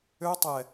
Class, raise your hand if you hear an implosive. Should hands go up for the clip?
no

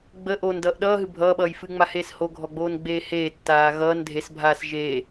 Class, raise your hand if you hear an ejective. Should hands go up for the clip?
no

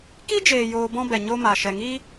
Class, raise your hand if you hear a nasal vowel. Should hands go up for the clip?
yes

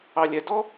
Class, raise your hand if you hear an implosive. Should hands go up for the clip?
no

